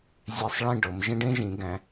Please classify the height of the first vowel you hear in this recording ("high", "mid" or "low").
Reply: mid